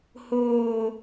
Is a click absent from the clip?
yes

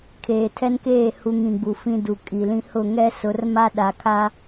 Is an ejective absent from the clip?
no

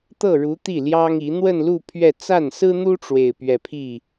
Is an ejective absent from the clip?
yes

